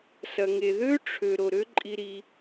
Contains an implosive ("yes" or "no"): no